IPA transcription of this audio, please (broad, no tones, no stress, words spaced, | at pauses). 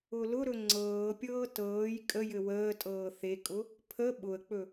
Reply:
ʊlʊɾɵ ŋ͡ǀɤːpʲɤː tɤːj kʼəjɘ wəː tʼɤːθekʼʊ | pʰə ɓʊə̯k͡pɵ